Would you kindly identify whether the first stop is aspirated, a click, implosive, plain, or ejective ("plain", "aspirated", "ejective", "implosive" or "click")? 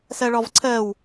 click